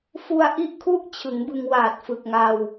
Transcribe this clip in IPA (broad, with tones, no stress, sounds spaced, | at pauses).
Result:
f u˧ a̯ ʔ i˦˥ ʔ kʰ u˥˩ ʔ t͡ɕʰ ɯ˩˦ ŋ b ɯ˧ ŋ w aː˨˩ t̚ f ɯ˨˩ k̚ ŋ a˧ w